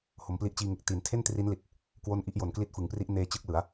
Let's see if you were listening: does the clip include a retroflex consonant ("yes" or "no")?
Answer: no